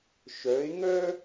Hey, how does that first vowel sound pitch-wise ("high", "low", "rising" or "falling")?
rising